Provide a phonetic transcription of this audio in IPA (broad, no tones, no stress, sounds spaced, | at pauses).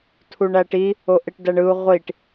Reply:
tʰ u ɳ æ ʈ i | o ʔ e ʈ d æ ɳ ɯ u̯ ʁʷ i ʈ